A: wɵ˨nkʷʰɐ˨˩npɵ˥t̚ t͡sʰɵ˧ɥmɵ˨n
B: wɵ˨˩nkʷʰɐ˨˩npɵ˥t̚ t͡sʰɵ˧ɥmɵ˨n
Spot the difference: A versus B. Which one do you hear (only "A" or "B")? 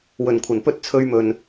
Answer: B